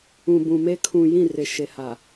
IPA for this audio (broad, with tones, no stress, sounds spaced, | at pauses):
ũ˨ b ũ˨ m e˦ kʰ ũ˨ j ĩ˦˨ r ɪ˨ ʃ e˨ h a˨